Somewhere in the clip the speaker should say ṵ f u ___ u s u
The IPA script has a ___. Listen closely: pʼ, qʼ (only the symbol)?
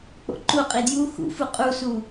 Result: qʼ